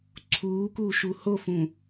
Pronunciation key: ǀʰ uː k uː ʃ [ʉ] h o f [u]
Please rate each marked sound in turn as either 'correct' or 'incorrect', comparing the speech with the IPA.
incorrect: u, incorrect: ũ

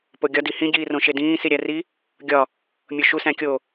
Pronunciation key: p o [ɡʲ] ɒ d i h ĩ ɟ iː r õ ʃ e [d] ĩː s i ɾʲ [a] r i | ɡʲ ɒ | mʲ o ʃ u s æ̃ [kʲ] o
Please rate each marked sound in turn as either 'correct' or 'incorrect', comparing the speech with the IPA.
correct, correct, incorrect: æ, correct

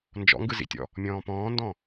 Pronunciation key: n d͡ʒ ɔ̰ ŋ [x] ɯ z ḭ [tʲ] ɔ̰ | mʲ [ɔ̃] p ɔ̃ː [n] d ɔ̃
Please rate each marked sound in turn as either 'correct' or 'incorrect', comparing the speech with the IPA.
incorrect: ɡ, correct, incorrect: ɔ̃ː, correct

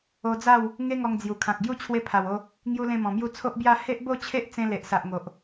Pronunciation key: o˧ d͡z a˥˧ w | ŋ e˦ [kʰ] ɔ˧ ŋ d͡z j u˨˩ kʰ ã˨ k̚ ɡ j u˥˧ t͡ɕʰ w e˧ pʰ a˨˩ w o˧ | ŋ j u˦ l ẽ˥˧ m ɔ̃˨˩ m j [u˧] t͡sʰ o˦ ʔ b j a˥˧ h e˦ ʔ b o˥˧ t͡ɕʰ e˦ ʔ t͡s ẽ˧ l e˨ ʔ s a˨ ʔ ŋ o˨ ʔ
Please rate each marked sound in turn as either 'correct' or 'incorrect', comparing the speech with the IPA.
incorrect: ŋ, incorrect: u˥˧

